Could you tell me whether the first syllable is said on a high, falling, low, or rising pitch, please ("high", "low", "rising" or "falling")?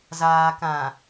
low